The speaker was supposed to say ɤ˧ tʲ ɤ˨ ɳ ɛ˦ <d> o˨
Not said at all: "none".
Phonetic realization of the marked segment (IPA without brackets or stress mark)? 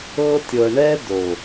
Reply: d